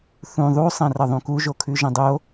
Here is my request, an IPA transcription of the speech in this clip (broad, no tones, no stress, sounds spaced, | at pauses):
θ ũ ðˤ u sˤ ɐ̃ r ɐ ðˤ ũ k u ʒ o kʰ ʉ ʒ ɐ̃ dˤ o